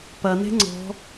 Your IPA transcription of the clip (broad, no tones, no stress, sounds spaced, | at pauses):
p ɐ n e̤ ŋ͡ǀ ɔ̤